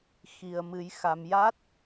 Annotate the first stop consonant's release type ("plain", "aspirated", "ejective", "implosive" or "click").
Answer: plain